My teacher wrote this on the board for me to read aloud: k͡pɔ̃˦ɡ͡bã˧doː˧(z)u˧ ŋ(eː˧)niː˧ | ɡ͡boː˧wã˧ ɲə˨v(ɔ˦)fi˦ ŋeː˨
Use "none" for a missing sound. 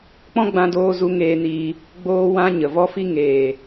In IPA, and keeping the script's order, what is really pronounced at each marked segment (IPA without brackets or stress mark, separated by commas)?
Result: z, eː˧, ɔ˦